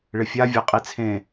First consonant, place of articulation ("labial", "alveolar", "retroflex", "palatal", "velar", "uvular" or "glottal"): retroflex